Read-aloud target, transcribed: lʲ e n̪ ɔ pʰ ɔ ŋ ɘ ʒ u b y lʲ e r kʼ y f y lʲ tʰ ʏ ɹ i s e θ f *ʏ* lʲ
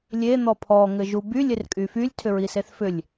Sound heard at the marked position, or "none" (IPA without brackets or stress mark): ʏ